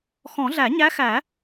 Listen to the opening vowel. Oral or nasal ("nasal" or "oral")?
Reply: nasal